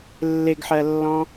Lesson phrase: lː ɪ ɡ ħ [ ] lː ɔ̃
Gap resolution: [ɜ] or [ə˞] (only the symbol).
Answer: ɜ